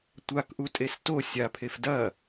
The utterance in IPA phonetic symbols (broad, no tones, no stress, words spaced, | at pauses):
tʷakʔutʼes to sʲapʰef dɐ